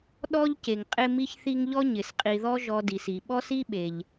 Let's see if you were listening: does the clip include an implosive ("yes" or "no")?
yes